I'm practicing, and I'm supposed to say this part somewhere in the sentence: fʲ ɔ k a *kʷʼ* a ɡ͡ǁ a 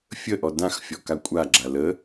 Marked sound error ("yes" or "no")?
no